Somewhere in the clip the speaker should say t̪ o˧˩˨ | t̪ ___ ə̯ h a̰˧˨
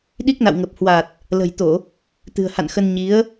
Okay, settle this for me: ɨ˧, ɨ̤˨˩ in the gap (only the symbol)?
ɨ̤˨˩